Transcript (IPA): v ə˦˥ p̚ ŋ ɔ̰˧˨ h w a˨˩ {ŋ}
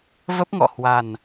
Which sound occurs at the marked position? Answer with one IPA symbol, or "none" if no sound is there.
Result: n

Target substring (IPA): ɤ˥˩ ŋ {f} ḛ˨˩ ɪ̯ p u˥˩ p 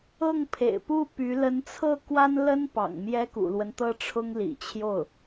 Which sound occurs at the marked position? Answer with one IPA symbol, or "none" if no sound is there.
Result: pʰ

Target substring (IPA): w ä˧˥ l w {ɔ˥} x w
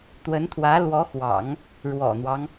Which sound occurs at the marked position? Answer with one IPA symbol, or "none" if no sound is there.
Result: ɔ˧˥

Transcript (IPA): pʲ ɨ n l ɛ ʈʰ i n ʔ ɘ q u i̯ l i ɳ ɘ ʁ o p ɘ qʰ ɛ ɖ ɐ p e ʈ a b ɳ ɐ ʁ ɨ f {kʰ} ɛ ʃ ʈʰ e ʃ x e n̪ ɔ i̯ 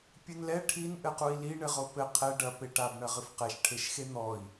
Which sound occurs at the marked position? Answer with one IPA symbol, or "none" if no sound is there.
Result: q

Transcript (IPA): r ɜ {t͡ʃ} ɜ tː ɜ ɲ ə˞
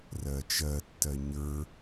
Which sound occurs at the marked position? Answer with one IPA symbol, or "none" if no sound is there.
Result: t͡ʃ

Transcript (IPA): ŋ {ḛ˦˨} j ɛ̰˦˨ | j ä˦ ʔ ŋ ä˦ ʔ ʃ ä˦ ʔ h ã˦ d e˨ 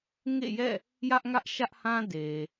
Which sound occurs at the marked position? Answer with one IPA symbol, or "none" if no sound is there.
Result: ḛ˦˨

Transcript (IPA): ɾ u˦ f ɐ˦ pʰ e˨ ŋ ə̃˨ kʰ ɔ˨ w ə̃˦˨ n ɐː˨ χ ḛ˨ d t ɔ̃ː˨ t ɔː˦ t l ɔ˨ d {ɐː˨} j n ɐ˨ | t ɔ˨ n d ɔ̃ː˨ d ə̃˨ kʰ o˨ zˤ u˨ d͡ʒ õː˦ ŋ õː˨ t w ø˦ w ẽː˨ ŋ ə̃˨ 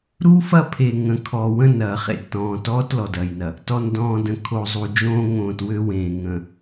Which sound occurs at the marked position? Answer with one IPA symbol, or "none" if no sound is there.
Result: ɐː˨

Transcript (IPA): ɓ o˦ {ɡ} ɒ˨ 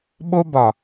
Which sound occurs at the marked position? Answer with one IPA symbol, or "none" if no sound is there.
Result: b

